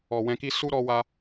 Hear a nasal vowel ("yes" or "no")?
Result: yes